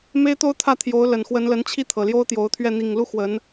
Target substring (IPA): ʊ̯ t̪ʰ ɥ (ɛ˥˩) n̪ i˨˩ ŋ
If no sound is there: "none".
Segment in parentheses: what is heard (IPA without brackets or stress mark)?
ɛ˥˩